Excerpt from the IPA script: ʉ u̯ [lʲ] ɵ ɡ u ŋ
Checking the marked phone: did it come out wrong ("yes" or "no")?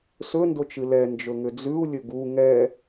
no